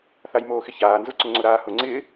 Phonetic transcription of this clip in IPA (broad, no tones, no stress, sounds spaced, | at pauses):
θ a j m oː x ɪ ç aː n z ʊ ǀ ʊ ŋ͡ǀ ʊ ɾ aː h ʊ ŋ͡ǀ ɪː